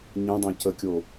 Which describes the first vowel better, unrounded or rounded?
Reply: unrounded